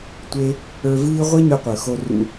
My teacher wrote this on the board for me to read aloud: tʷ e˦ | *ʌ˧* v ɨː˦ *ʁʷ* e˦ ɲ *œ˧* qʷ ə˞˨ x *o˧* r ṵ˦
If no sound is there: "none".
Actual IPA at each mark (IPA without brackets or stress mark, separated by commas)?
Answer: ə˞˧, ʁʷ, œ˧, o˧